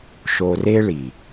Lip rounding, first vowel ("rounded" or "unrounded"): rounded